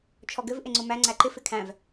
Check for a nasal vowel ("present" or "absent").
present